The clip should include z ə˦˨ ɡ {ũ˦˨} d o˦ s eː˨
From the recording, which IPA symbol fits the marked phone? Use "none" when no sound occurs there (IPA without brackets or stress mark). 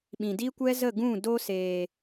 ũ˦˨